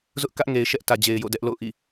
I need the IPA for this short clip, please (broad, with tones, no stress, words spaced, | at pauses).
zʊ˦ʔkä˦ʔŋe˨ɪ̯ ʃɛ˦ʔtä˨ d͡ʑe˨ɪ̯jo̰˦˨dɛ˦ʔ lo̰˦˨ʊ̯ʔḭ˦˨